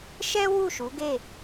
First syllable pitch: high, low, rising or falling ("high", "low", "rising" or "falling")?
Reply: high